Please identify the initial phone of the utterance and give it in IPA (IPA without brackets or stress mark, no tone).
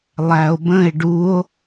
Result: lˠ